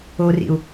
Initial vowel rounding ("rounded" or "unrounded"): rounded